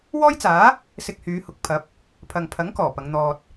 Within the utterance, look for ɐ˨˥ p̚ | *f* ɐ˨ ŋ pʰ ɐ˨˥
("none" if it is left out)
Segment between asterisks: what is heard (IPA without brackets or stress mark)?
pʰ